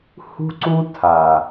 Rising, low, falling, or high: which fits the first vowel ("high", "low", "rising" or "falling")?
high